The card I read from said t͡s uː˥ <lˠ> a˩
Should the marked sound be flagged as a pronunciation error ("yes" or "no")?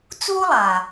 no